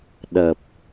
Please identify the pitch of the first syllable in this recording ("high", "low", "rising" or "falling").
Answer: low